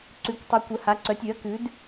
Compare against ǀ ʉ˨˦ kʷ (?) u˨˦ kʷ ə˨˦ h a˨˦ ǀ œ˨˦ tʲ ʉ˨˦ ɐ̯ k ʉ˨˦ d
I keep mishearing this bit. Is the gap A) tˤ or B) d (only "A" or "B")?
A